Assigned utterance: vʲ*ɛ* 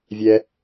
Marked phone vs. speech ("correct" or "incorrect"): correct